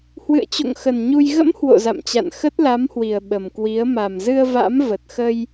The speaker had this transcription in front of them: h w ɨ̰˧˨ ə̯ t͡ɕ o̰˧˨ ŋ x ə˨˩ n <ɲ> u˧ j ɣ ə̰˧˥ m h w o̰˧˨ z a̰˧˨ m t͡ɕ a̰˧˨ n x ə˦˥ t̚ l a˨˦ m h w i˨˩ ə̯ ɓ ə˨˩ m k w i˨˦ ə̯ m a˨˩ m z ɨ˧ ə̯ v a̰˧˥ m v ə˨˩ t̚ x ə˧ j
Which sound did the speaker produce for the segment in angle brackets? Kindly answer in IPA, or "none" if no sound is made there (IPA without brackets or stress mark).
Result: ɲ